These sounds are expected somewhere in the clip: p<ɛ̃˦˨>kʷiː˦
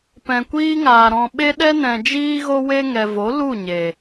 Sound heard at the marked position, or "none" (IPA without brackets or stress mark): ɛ̃˨